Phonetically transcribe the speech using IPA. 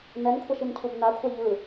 nɛnkʷʰaʃincʰub nakʷʰa ʎɯ

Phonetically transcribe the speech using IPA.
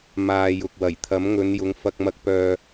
maː˨ jʊ˨k̚wɐ˨˩j t̪ʰɐ˨˥mŋɵ˨˧njʊ˨˧ŋ fɐ˧k̚mɐ˧k̚pœː˧

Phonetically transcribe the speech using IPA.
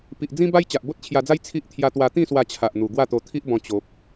pi˨ʔd͡zĩ˦ba˦j t͡ɕa˨ʔbo˦t̚t͡ɕʰja˧d͡za˦j t͡sʰi˦ʔ t̪ʰja˦t̪wa˦ t̪ĩ˥˧swa˧t͡ɕʰa˨ʔ n̪u˨˩ ɡwa˥˧t̪o˧t̪ʰi˦ʔbɔ̃˧ t͡ɕo˨p̚

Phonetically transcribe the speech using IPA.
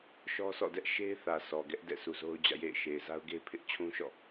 ʃɔ˦sʰɔ̰˦˨dɛ˦ʔ ʃe˦ɪ̯θä˨ sʰɔ˨ ɡɛ˦ʔdɛ̰˦˨sʰu˨ zo˦ʊ̯d͡ʑä̰˦˨ jḛ˦˨ɪ̯ ʃe˨ɪ̯za˦ʊ̯ɡe˦ɪ̯ pʰɪ˦ʔ t͡ɕʰũ˦ʃɔ̰˦˨

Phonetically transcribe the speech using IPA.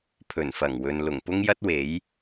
pʰɵ˨˩nfɐ˨˩ŋwɵ˨n lʊ˨˩ŋpʊ˥ŋjɐ˥t̚ we˨˥j

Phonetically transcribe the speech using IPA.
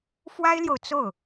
fwa˥ɪ̯ljo˨ʊ̯ t͡so˥˩ʊ̯

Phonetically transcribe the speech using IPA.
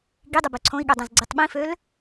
ɡidˤʊbø ǀʰõi̯ɠødˤɛ̃zɡ͡ǀitˤ ɓĩføl

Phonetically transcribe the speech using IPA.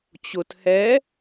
t͡ɕʊt hɛ

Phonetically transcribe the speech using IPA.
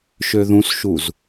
ʃøðũsʃuz

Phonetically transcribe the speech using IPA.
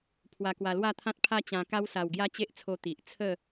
pʰwa˧kwa˧lwa˥˧t̪ʰã˦t̚ pʰa˦t͡ɕã˧ka˦wsa˧w ɡja˦t͡ɕe˦ʔt͡sʰo˧ t̪i˨ʔt͡sʰə˥˧

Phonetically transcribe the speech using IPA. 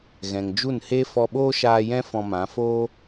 ɣɛ̃˨ŋ d͡ʒu˦˨nhe˦ fɔ˧ɓoː˦ʃaː˧ jɛ̃˦ fɔ̃˧mã˨˦ foː˦

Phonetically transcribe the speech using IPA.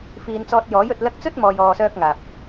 fiː˧nt͡sɔː˧t̚jɔː˨˥j ɵ˨t̚lɐ˧k̚ t͡sɵ˥t̚mɔː˨j ɔː˨sœː˧k̚ŋaː˨p̚

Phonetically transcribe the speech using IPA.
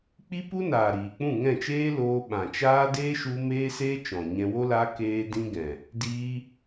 k͡pi˦pu˦naː˨ ɾiː˨k͡pũ˦˨ ŋɛ̃˦˨t͡ʃeː˦loː˧ɓã˨ t͡ʃaː˦ deː˦ʃu˧meː˦seː˦ t͡ʃɔ̃˨ɲɛ̃˧wo˦la˦ keː˦dĩ˦ɡɛ̃˨ | diː˧

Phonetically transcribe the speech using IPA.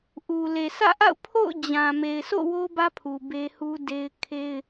ʔu˨ le˨sä̰˦˨ʔa̰˦˨ʊ̯ pʰo̰˦˨ʊ̯d͡ʑã˨ me˨ɪ̯sʰo̰˦˨ wo˦bä˦pʰu˨ be˦hu˦ de˦ɪ̯ kʰe˦ɪ̯

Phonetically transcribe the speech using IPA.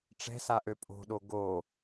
ʈ͡ʂɛ̤saʔø pʼo̤ɗo ɡo

